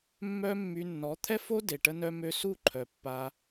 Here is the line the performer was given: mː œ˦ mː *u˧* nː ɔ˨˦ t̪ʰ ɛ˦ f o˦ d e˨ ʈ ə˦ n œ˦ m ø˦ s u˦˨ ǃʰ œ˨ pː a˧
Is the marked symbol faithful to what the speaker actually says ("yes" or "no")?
no